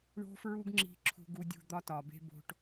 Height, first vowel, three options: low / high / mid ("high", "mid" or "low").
mid